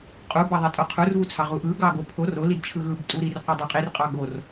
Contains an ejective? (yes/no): yes